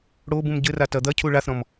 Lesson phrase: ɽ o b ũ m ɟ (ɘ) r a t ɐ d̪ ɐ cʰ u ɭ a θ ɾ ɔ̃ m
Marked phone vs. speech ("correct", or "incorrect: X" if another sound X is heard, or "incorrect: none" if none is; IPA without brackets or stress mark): correct